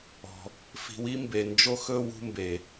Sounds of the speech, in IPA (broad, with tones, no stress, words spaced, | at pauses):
ɔ̤˩ | fi̤˨wi˥mbe˩ nd͡ʒo˥xɵ˥wṳ˦mbe˩